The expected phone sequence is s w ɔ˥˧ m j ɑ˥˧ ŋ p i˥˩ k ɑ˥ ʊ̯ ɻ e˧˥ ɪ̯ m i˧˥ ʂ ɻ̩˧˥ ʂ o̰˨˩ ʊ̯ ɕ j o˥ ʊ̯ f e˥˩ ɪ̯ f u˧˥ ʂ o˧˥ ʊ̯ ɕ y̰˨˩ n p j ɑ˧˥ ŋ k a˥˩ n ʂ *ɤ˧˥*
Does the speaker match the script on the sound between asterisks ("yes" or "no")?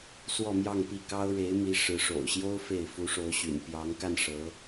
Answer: yes